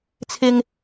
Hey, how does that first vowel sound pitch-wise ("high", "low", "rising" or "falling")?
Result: low